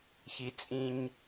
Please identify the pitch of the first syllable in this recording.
low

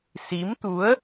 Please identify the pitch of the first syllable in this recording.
rising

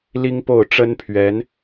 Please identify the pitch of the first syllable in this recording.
high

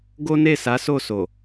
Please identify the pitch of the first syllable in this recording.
high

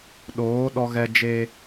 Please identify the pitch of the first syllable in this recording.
rising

